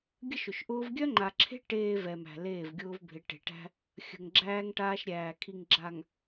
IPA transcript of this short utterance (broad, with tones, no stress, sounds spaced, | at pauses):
ɡʲ ə˦ ʃ ʊ˨ ʃ ʔ ʊː˦ v ɡʲ œ˦ ŋ͡ǃ a˨ ǁʰ e̤˦ ʈ eː˨ v ɛ˨ m æ̤˨ l eː˦˨ v ɡʲ ʊː˦ v bʱ ɪ˨˦ ʈ e̤˨ ʈ æ̤˦ | xʲ ə̤˨ ŋ ɡ͡ǁ æː˦ ŋ ʈ aː˦ ʃ ɾʲ æː˨ kʰ i˨ ŋ ɡ͡ǁ a˨ ŋ